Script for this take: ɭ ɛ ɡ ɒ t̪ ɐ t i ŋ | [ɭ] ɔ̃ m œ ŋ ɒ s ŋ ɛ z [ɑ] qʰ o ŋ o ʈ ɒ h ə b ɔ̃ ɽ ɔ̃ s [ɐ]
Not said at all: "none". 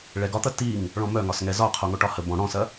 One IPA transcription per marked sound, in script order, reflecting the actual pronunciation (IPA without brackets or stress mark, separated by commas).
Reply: ɭ, ɒ, ɐ